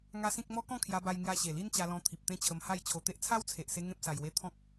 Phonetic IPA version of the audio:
ŋ a˦ s ĩ˦ k̚ m ɔ˦ k ɔ̃˥˧ kʰ j a˧ b a˧ j ŋ j a˧ ɕ e˨˩ l i˦ n t͡ɕ a˧ l ɔ̃˧ t̪ʰ i˨ p̚ t̪ ẽ˦ t͡ɕʰ ə˧ m h a˥˧ j t͡ɕʰ o˧ t̪ e˦ ʔ t͡sʰ a˦ w t͡sʰ e˨ ʔ s e˧ ŋ ẽ˦ p̚ s a˧ j w e˦ t̪ʰ ɔ̃˦ k̚

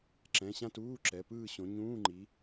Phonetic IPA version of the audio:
ǁ ɛ̃˩˧˩ ɕ ã˦˨ t uː˧˥˧ ǁ ɛ˩˧˩ p ɯː˦˨ ɕ õ˨˦ ɲ ũː˧˥˧ ŋ͡ǃ i˨˦

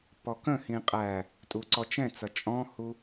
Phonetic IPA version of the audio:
p ɔ k ə̃ h ĩ qʼ æ | tʼ u ǀ ɔ t͡ʃ ɛ̃ t͡s ʌ t͡ʃʼ ɔ̃ h u

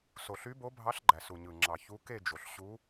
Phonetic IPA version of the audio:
s o˨ ɬ y˧˥ b o˧˥ bʱ ɑ˧˥ ɬ ɡ͡ǃ æ˨ s u˨ ɲ ɯ˨ ŋ͡ǁ ɑ˨ ç u˧˥ k e˥˧ d͡ʒ o˨ ɬ ɕ u˧˥

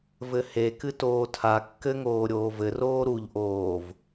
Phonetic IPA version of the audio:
v ɘ h e k ɨ t oː tʰ a kː ɘ ŋ oː ɾʲ oː v ɘ r oː ɾ u ʎ ʔ oː v

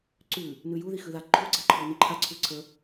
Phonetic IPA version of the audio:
ǀ ʉ | n ʉ j u ð i x ʉ ð a ǃʰ u ɡ͡ǀ a ǃʰ ɔ n i ǃʰ a ǀʰ ʉ ǀʰ ə

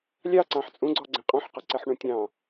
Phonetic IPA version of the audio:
lʲ ɑ ǀ ɑ̃ ħ t͡sʼ ũ ɡ͡ǀ ɔ ɡ͡ǀ ɛ̃ qʼ ɔ̃ ħ q ɔ ǀ ɛ ħ ɳ ũ tʲ ɑ̃

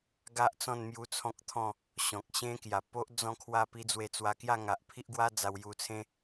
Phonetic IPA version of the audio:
ɡ a˦ ʔ t͡s ɔ̃˥˧ n m j u˦ t͡sʰ ɔ̃˦ k̚ t̪ʰ ɔ̃˥˧ | ɕ ɔ̃˨ k̚ ɕ ẽ˦ k j a˨˩ p o˦ ʔ d͡z ɔ̃˥˧ kʰ w a˥˧ p i˦ d͡z w e˧ t͡s w a˧ k j a˥˧ ŋ a˨ ʔ pʰ i˦ ʔ ɡ w a˦ d͡z a˧ w j u˧ t͡sʰ ẽ˦

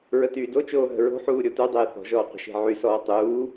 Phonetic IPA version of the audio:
ɹ ə t yː d o t͡ʃ oː ɦ ə̤ ɹ o̤ ħ uː ɾʲ o t u dˤ eː θ ɔ̤ ʒ ɔː qʷ ə̤ ʃ e̤ ʕ y s ɔː tˤ uː

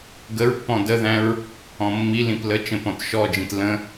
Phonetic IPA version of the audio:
ɡ ə ɹ pː ɔ̃ d ə ð æ̃ ɹ | ɔ̃ mː i l ĩ p l ə t͡ʃ ə̃ p ɔ̃ t ʃ ɔ d͡ʒ ĩ t l ə̃

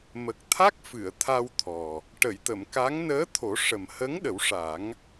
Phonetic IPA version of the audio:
m ə˨˩ k̚ t̪ʰ a˦˥ k̚ f ɨ˨˩˨ ə̯ t̪ʰ a˧ w t̪ʰ ɔ˨˩ | ʈ ə˨˩˨ j t̪ ə˨˩˨ m k a˧˥ ŋ n əː˧˥ t̪ʰ o˨˩˦ ʂ ə˨˩ m h ə˧˥ ŋ ɗ ə˨˩˦ w ʂ a˨˩˦ ŋ

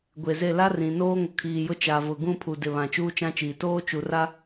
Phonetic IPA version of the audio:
ɡʷ e˨ z e˦˨ l a˦ r ĩ˨ n oː˦ ŋ ʊ˨ kʰ iː˨ j ʊ˦ t͡ʃ a˨ v ʊ˨ ɡ ũ˦˨ pʰ u˨ d ɪ˨ β ã˨ t͡ʃ uː˦ t͡ʃ ã˦ t͡ʃ iː˨ t oː˦ t͡ʃ u˨ r a˦

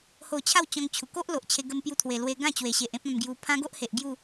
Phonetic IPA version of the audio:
h o˥˧ t͡ɕʰ a˥˧ w t͡ɕ ɔ̃˧ ŋ t͡ɕʰ u˨˩ k o˦ ʔ l o˨ ʔ t͡ɕʰ e˧ ɡ ə˧ m p j u˧ t̪ʰ w e˨˩ l w e˧ ɡ ã˥˧ t͡ɕ w e˨˩ ɕ e˨ ʔ ẽ˦ p̚ ã˧ m ɡ j u˧ pʰ ã˦ ɡ o˦ ʔ h e˨ ʔ ɡ j u˥˧

